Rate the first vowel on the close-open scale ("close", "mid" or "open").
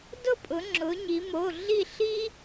close